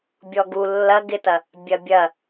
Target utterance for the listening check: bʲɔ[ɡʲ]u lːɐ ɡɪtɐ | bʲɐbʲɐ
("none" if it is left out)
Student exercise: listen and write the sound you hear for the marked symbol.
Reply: ɡ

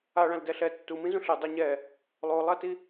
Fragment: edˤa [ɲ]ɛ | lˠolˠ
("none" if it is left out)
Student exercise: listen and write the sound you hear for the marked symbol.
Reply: ɲ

